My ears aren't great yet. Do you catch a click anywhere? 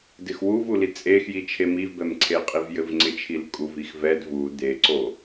yes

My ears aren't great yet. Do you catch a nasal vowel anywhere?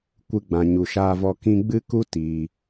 yes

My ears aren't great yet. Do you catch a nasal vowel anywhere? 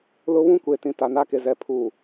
yes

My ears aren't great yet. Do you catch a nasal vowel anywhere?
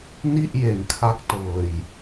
no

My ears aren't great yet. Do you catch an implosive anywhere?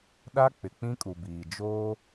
yes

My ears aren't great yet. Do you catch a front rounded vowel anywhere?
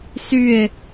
yes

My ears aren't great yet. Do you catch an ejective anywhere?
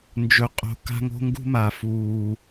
yes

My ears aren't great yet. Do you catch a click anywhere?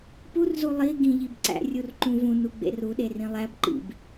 yes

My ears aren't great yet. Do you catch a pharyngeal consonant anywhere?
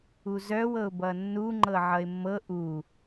yes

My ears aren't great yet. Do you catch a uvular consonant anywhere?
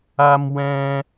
no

